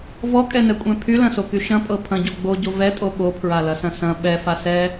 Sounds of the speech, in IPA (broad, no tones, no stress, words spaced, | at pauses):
vɔkʼɛnɛkʷʼɛ̃ pʰylɐ̃soky ʃɐ̃pʼɤ pʰɐ̃ɟo ɡ͡boɟo vɛtʼo ɓopʰɹalɐsɐ̃ sɐ̃ ɓɛfa sɛ